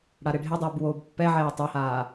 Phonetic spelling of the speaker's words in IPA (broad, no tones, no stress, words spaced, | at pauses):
ɽaɾeɖʱedˤuːb woːbpːɛʕɛː tˤahaː